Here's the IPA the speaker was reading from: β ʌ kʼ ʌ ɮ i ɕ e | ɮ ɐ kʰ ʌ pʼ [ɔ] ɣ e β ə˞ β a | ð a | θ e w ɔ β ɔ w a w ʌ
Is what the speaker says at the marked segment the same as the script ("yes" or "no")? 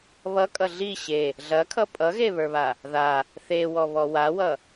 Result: no